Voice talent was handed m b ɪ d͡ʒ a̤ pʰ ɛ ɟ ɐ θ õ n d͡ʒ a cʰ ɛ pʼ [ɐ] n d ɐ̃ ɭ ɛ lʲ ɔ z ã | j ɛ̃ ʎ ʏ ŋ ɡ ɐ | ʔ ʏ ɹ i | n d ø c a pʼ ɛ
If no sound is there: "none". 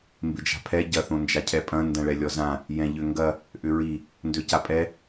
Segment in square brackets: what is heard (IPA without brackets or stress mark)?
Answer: ɐ̃